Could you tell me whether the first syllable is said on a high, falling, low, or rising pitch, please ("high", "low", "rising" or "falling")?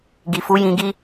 low